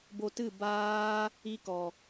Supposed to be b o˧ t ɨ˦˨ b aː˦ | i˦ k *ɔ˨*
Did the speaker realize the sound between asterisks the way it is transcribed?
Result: yes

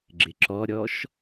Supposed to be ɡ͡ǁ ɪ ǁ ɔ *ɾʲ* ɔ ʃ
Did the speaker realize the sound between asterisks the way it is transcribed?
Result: yes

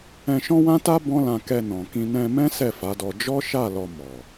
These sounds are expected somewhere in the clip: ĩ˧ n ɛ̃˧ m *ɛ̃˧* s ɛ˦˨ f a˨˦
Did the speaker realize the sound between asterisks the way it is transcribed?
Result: no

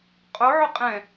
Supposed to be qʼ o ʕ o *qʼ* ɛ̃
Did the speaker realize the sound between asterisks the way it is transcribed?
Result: yes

